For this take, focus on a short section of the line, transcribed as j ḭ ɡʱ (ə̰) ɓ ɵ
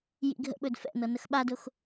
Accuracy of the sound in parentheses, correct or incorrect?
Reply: correct